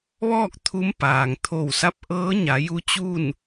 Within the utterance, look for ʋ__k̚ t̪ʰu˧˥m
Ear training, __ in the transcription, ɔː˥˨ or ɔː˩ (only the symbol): ɔː˥˨